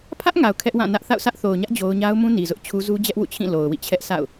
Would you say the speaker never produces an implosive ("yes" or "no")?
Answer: yes